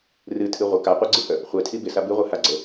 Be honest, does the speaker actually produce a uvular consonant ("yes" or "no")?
yes